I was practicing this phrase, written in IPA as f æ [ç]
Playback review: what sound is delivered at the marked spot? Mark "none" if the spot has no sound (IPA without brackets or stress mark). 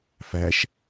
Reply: ʃ